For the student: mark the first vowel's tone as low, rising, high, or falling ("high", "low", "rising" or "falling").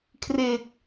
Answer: low